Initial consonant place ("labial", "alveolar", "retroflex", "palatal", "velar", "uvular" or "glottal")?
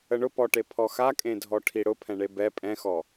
retroflex